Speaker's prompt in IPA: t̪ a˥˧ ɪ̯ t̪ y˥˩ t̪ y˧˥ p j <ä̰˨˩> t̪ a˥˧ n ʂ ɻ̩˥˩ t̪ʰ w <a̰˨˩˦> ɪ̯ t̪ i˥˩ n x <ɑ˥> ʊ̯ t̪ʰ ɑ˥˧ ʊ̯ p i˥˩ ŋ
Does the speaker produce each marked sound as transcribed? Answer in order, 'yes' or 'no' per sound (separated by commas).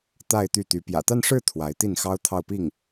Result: yes, no, yes